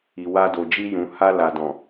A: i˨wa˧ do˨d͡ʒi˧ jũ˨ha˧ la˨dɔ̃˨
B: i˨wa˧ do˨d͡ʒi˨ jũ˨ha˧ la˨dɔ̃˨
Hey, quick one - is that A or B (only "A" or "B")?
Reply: A